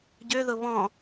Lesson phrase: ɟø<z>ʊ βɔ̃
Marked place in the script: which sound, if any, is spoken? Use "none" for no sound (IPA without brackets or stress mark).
ð